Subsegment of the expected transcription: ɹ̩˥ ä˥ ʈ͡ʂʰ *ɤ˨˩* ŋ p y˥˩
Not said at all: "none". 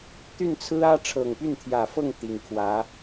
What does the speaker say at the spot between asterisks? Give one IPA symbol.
ɤ˨˩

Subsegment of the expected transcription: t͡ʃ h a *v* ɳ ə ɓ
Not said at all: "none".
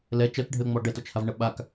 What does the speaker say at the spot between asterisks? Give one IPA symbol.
v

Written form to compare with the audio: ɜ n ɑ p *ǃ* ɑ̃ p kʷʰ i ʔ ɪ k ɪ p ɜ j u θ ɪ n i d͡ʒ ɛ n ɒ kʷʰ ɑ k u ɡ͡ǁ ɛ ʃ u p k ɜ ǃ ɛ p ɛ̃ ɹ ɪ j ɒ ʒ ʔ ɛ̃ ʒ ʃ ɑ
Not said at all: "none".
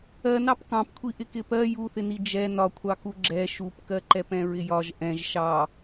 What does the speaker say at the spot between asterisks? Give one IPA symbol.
k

